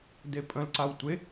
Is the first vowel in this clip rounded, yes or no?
no